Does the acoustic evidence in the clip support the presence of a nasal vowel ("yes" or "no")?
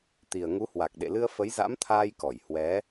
no